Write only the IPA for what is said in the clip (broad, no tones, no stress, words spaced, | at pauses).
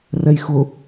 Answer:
rɛjxʊ